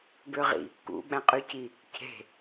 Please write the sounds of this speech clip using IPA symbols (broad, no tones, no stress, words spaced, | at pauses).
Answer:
bøʁḭ | kṵ ɓæ̃qʼyci | cʰe̤